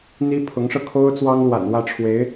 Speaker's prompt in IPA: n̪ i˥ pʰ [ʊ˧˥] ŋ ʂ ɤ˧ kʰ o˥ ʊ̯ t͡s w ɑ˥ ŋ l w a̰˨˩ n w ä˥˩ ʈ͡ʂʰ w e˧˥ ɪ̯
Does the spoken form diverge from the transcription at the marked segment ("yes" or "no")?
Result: no